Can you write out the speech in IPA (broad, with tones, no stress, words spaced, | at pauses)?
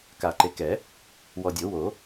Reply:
ka˨˩˦ǃe˨kɛ˨˩˦ | wɔ˨dʲo˨˩˦wo˨˩˦